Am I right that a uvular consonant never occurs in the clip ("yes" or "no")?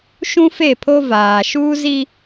yes